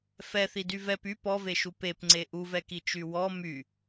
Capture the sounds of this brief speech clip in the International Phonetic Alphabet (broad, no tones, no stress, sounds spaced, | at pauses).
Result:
f ɛ θ i d y v ɛ p y p ɔ v e ʃ u p e p ŋ͡ǀ e ʔ u v ɛ k i t͡ʃ y w ɔ m y